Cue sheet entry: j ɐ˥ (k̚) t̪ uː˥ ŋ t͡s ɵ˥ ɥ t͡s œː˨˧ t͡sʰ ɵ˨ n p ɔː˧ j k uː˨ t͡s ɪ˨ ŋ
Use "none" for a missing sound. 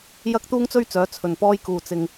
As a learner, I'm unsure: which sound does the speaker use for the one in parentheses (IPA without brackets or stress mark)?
k̚